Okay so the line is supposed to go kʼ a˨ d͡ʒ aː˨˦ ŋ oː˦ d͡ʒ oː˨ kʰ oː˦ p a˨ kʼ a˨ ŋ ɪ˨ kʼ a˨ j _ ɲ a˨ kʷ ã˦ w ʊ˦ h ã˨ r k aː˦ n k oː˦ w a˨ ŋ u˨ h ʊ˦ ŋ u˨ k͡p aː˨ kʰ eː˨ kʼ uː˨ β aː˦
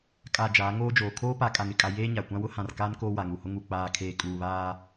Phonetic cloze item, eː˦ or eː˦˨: eː˦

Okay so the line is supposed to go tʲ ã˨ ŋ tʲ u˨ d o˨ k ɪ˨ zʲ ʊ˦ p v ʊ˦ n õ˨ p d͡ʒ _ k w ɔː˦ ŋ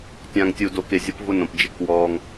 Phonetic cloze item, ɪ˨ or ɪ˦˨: ɪ˦˨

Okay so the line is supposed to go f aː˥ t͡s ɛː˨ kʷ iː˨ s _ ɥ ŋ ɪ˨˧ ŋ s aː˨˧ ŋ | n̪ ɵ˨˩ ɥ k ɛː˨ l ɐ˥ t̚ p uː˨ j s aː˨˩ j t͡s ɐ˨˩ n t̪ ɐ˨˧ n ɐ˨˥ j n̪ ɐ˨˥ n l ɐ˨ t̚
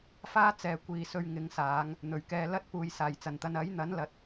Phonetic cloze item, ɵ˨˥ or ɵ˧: ɵ˧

